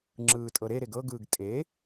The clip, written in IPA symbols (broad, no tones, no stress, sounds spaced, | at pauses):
ŋ͡ǁ ɯː tʼ ɤ ɾ e ɾ e ɡ ɤ ɡ ɯː ɡ tʼ e